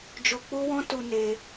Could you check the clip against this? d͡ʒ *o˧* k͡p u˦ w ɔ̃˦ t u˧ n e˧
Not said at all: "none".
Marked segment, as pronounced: o˧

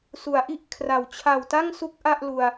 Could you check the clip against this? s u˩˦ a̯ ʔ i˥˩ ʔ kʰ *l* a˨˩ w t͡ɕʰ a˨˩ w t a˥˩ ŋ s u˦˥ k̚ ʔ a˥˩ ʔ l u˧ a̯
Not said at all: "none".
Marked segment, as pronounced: r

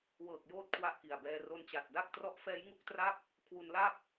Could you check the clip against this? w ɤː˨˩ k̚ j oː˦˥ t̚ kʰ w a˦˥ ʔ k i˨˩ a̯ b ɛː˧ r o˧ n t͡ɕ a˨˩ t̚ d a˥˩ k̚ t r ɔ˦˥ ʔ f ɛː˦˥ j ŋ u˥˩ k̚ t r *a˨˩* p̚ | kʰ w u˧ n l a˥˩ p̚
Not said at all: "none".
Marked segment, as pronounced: a˥˩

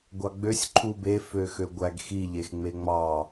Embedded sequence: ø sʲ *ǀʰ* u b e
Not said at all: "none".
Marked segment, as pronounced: ǃʰ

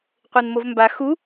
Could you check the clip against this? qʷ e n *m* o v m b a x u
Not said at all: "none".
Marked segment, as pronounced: m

